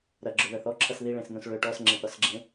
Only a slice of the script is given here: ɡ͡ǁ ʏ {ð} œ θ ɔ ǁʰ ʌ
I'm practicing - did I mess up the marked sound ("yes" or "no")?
no